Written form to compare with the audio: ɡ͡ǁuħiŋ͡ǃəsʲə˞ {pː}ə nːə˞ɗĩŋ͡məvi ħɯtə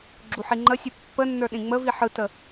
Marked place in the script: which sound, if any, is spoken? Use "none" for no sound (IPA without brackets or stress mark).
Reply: pː